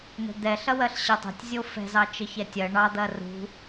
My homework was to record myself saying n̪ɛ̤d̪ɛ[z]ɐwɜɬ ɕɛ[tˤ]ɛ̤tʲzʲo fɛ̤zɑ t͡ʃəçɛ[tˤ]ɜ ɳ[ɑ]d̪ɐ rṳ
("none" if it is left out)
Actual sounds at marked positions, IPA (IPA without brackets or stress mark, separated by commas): ɬ, tˤ, tʲ, ɑ